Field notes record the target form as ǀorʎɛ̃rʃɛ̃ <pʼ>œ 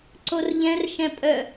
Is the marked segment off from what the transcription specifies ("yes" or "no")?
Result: no